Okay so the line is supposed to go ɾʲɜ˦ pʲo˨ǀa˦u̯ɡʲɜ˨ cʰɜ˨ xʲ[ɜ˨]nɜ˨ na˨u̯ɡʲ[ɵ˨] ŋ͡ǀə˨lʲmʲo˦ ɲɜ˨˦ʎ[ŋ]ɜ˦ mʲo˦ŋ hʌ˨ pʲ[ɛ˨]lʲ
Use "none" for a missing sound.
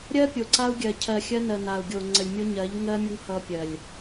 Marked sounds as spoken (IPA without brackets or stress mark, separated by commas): ɜ˦, o˨, ŋ, ɜ˨